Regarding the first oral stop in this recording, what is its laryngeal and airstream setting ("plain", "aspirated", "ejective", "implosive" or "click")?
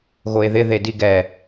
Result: plain